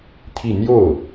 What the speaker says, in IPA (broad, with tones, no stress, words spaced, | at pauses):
t̪ʰi˥˧ n̪jo˥˩ʊ̯